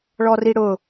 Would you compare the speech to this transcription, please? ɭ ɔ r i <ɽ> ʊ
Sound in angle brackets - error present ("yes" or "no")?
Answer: no